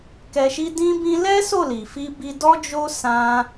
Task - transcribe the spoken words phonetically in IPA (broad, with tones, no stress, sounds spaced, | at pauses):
k ɛ˧ ʃ i˦ d ĩ˦ b ĩ˦ l ɛ˦ s o˦˨ l i˨ f i˧ b i˧ d ɔ˦ d͡ʒ o˦ s ã˦